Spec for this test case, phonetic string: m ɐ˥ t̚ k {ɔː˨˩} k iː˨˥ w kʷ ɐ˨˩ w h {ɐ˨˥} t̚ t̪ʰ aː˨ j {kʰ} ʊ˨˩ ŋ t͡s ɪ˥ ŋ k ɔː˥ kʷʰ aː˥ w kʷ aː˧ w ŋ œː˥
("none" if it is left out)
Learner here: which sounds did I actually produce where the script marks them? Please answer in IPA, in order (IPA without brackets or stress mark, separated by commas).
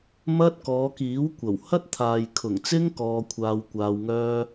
ɔː˨˧, ɐ˥, kʰ